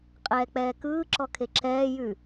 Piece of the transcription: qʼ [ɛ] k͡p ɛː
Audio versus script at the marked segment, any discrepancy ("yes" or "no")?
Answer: yes